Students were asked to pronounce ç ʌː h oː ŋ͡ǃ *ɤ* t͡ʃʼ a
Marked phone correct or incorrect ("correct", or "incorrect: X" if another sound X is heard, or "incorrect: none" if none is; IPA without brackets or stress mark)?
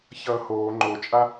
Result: incorrect: o